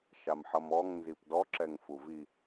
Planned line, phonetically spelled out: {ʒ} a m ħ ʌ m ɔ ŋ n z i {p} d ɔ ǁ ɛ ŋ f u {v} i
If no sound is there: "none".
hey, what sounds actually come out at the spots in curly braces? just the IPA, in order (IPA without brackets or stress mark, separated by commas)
ʃ, p, v